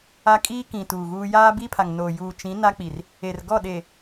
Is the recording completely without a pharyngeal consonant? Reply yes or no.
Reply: yes